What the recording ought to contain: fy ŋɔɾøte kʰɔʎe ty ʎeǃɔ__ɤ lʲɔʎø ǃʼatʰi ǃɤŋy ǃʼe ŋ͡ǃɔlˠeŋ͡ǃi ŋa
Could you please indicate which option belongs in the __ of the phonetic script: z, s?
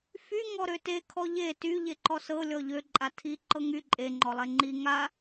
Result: s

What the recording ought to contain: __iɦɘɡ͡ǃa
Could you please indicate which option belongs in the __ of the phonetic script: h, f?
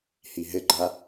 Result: h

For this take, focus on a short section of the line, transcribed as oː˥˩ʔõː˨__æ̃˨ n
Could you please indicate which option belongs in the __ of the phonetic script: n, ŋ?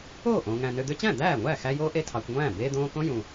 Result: ŋ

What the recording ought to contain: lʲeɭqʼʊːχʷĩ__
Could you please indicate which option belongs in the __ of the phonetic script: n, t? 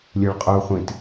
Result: t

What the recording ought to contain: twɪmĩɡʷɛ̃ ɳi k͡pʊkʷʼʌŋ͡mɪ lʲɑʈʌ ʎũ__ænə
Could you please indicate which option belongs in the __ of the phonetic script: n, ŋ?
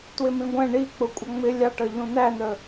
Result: n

